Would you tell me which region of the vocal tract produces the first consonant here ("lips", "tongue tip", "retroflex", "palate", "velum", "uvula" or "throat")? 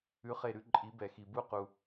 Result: uvula